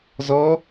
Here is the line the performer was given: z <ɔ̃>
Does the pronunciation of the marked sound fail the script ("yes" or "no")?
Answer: yes